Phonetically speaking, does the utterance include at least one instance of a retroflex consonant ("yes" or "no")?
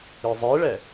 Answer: yes